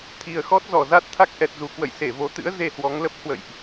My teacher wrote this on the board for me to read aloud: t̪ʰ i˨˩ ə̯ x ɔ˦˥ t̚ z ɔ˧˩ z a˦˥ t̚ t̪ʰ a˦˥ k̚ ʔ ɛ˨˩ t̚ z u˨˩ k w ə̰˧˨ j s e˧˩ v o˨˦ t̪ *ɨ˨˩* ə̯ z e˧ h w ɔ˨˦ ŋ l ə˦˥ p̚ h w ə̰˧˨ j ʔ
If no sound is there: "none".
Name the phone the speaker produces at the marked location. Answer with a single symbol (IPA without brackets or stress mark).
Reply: ɨ̰˧˥